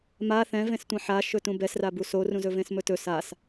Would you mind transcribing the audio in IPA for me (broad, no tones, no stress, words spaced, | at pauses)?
ma θɛ̃vẽstʷã ħaʃɵ tũbɛsrabu sorũzɵvẽs mɵtɵ sas